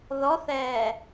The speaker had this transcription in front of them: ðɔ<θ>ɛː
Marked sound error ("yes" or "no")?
no